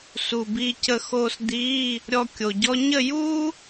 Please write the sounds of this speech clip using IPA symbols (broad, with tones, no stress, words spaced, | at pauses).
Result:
su˨˩biː˧ cə˧xoː˧s d̪iː˧˥˧ | ɾʲɔ˧ kʲo˨˩ɟɔ˥ ɲə˥˨juː˥